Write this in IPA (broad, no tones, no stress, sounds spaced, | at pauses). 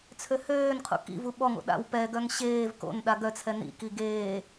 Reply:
t͡sʰ ø h øː n qʰ ṵ k ḭ v u ɓ ɔ ŋ o̰ ɗ a̰ w p ɛ ɡ œ ŋ ɕ eː v k o̰ n ɗ a ɡ œ t͡sʰ ɛ n ḭ k i ɡ eː